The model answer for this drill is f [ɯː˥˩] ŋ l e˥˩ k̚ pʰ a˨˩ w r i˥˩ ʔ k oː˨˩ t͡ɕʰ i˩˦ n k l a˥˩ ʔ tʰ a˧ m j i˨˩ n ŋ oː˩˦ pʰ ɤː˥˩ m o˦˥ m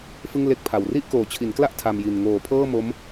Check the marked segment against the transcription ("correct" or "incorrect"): incorrect